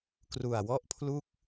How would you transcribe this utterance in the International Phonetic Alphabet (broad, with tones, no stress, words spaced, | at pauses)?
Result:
kru˨˩a̯wɔ˥˩ʔpʰlu˥˩k̚